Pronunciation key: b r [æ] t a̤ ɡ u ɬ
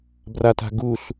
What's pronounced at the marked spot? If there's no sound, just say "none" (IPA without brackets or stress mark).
a